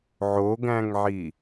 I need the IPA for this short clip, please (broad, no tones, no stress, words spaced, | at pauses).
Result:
ʕoɡæ̃ŋʕi